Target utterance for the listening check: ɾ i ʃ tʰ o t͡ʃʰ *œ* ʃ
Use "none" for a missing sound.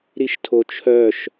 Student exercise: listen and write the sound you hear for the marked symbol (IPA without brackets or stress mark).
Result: œ